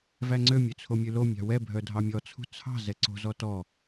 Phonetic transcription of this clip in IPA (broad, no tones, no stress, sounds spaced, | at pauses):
v æ ŋ͡ǀ ø mʲ ø t͡sʰ o mʲ ʉ l o mʲ ɑ̤ w ɛ bʱ œ dʱ ɑ mʲ ɔ t͡sʰ ṳ t͡sʰ ɑ̤ z ɛ ǀ o̤ z ɔ t ɔ